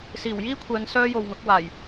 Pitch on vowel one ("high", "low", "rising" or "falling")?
low